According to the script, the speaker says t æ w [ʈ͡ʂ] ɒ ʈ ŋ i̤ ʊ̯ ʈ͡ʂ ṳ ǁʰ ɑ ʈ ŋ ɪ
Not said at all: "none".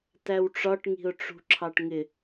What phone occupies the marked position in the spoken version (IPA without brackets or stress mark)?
ʈ͡ʂ